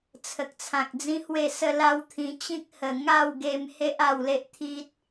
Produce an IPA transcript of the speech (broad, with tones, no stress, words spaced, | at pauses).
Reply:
t͡sʰə˨k̚t͡sʰã˨k̚d͡zĩ˦hwe˥˧ sə˦la˦wt̪ʰĩ˧ t͡ɕĩ˦k̚hə˨˩ ŋa˥˧w ɡe˧m he˦ʔ a˥˧wle˦ʔt̪ʰi˦t̚